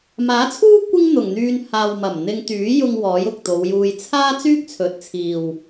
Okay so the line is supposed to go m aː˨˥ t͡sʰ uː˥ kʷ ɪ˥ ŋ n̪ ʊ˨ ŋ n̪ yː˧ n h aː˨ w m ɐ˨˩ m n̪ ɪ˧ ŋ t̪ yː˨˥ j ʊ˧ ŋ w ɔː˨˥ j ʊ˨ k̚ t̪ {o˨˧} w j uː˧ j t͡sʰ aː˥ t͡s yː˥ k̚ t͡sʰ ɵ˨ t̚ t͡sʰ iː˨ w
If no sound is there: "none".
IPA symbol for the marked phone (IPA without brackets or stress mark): o˨˧